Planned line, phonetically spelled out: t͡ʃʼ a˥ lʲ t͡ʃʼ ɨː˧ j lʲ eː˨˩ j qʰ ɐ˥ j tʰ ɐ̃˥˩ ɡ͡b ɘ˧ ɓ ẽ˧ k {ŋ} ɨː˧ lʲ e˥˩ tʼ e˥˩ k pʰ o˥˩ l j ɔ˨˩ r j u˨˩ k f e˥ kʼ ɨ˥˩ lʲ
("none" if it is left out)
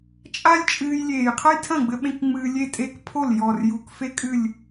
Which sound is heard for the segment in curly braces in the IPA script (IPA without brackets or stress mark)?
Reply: ŋ͡m